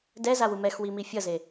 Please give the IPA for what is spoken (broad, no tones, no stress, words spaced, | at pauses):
dɛzawu mɛxwimi fʲʌze